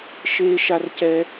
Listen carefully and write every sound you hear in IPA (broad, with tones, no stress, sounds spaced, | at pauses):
ʃ eː˥ ʃ a˥ r c ɛ˥